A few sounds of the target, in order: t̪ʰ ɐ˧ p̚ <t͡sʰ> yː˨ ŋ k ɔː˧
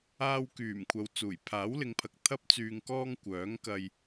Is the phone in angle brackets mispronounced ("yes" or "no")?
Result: yes